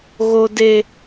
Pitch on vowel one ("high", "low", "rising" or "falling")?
low